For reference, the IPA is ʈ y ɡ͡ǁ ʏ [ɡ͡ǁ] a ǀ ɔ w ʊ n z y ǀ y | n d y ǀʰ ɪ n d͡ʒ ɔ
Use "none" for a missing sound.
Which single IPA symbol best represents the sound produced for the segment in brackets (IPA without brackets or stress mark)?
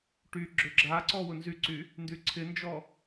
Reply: ɡ͡ǁ